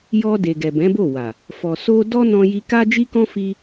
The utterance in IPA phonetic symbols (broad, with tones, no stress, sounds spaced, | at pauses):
j ɔ˧ d e˨ ɡ ɛ˨ b ɛ̃˨˦ b o˦˨ w a˨ | f ɔ˨ s o˧ d ɔ˦ n ɔ̃˧ j i˧ k a˦ d͡ʒ i˦ k ɔ̃˦ f i˧